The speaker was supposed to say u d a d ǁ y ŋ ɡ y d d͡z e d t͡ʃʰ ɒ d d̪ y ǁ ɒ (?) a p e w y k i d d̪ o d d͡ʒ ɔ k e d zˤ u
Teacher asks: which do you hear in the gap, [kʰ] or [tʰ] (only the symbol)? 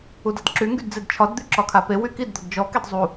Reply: kʰ